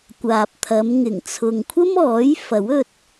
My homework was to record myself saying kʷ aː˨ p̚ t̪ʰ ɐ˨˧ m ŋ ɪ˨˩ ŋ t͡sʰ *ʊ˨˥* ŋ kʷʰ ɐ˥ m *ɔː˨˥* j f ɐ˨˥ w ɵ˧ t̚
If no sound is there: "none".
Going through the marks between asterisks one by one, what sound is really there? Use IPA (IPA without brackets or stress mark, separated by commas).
ʊ˨, ɔː˨˥